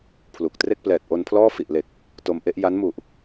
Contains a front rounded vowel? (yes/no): no